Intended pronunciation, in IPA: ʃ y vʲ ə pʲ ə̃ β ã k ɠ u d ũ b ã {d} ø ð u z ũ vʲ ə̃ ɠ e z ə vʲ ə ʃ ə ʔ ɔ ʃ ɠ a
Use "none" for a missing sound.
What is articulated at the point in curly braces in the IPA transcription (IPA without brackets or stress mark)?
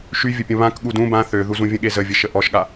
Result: θ